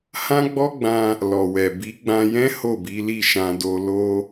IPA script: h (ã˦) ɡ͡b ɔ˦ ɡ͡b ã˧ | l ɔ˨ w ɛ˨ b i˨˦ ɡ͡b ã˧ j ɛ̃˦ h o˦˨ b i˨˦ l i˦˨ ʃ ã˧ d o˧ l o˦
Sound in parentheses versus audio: correct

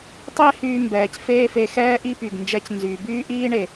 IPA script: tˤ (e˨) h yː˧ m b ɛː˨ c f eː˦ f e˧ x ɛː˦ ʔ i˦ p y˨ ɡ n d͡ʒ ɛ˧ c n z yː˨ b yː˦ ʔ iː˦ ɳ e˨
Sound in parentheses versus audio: incorrect: e˦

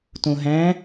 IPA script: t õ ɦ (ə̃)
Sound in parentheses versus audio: incorrect: æ̃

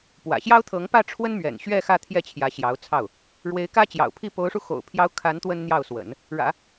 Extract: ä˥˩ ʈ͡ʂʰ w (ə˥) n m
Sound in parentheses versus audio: correct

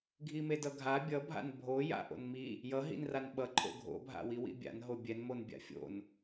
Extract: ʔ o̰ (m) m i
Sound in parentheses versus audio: incorrect: n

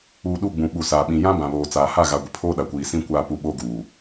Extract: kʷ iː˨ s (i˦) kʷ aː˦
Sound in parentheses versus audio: incorrect: ĩ˦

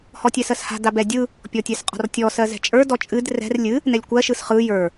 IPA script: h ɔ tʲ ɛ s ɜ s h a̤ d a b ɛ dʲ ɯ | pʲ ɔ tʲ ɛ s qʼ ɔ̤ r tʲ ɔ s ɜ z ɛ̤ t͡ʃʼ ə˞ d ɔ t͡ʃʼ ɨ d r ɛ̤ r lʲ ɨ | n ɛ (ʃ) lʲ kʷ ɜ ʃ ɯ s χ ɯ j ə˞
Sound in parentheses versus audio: incorrect: none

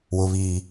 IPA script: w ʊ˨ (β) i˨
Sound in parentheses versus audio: correct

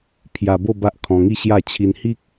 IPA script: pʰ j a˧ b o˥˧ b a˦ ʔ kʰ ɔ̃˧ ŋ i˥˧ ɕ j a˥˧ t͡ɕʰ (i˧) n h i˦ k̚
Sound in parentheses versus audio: correct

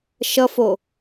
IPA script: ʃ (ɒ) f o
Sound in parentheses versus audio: incorrect: ʌ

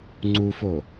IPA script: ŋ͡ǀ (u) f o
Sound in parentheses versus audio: correct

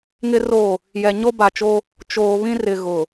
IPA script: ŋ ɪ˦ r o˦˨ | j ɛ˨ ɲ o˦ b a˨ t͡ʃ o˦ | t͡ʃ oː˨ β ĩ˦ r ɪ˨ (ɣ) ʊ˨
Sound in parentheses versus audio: correct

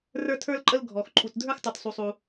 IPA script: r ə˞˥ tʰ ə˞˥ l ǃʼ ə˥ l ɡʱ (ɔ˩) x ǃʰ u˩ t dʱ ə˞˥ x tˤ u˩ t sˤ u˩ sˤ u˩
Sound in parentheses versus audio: correct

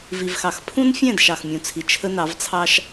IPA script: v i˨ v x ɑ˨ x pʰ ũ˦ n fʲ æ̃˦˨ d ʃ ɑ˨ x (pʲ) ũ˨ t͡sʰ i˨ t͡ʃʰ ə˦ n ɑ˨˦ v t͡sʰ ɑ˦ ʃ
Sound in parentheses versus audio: incorrect: mʲ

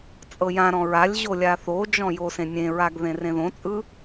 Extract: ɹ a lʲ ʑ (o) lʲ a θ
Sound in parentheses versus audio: correct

